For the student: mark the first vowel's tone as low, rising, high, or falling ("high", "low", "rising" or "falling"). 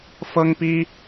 high